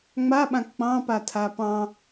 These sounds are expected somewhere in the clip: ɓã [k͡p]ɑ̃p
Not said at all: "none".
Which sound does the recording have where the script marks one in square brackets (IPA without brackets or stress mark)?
k͡p